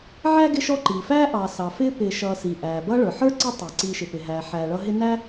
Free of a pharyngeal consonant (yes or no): no